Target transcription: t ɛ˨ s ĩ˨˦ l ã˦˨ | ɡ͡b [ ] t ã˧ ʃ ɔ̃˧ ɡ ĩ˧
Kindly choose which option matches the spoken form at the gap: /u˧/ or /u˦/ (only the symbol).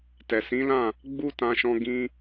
u˦